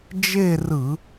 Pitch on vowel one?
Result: falling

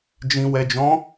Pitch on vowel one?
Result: low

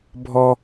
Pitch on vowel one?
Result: high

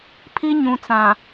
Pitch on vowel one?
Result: high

